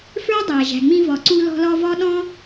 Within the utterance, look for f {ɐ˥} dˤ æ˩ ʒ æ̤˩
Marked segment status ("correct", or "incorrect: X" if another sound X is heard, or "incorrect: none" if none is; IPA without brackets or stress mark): incorrect: ə˞˥